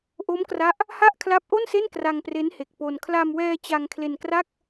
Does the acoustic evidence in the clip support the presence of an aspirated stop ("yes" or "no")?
yes